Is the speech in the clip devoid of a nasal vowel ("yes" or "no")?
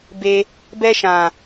no